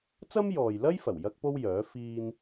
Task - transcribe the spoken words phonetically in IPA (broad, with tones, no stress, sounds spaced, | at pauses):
t͡s ɐ˥ m j ɔː˨ j l ɐ˥ j f ɐ˨˩ w j ɐ˥ k̚ p o˥ w j œː˨˥ f iː˥ n